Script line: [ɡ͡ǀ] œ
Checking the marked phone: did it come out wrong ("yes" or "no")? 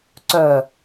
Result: yes